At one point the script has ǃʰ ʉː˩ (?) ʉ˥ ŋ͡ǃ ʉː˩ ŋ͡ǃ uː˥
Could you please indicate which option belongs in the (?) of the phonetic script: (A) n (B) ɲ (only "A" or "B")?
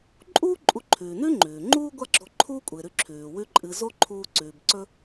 A